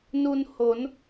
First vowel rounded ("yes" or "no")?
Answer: yes